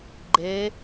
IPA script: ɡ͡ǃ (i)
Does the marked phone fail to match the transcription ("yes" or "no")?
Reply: yes